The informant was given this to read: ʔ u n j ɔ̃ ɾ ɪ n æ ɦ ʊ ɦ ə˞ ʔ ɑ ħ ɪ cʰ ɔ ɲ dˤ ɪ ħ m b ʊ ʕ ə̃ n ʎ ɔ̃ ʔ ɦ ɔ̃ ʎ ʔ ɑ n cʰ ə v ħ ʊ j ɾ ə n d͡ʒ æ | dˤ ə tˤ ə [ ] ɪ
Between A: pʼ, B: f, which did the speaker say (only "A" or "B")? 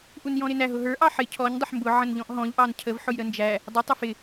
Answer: B